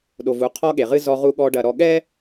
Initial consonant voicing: voiced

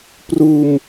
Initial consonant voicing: voiceless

